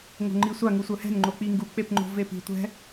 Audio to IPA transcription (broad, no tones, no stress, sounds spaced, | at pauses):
ŋ o̤ ŋ͡ǃ i sʷ a ŋ u sʷ œ h ɛ̤ n ŋ͡ǃ o k͡p i ŋ ɡ u k͡p e p ŋ͡ǃ o̤ v e p i̤ tʷ ɛ̤